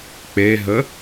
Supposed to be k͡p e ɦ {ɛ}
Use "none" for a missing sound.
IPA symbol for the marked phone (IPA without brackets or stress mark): ə